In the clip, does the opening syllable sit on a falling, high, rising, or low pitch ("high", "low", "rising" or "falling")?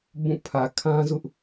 falling